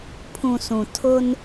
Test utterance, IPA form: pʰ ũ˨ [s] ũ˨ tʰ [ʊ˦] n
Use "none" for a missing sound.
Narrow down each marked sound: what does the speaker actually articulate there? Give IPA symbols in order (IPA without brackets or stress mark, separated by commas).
s, ʊ˦